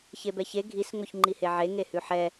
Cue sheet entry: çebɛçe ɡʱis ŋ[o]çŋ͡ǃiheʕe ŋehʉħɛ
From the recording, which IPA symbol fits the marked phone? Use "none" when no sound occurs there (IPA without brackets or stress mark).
o